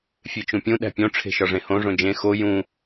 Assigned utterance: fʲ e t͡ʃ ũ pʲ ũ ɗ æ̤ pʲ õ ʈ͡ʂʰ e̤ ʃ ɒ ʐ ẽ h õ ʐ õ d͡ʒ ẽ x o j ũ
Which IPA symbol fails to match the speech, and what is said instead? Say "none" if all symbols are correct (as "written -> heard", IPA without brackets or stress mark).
none